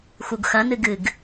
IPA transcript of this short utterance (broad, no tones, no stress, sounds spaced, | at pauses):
x u ɡ x ɐ n ɨ ɡ ɨ ɡ